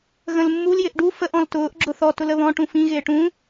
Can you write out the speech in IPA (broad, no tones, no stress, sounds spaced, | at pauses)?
ɣ ə̃ l mː u l j ɪ ʔ ɖ u f ə ʔ ɔ̃ l t ʊː ʔ ɡ͡ǁ ʊ θ ɔ t ʊ l ə β ɔ̃ ʈ ũ f ĩ ɣ ɪː ʈ ũ